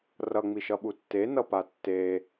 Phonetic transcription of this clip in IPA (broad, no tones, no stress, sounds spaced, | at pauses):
r ʌ ŋ͡m i ʃ ʌ ɓ u tː e n ʌ p a tː e